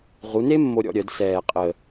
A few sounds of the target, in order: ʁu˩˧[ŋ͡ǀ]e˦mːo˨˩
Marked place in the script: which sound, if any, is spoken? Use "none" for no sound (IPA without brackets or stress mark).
n